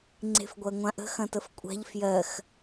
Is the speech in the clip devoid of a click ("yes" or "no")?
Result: no